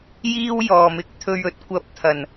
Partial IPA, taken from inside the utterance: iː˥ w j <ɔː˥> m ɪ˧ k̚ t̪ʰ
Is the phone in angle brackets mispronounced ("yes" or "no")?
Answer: yes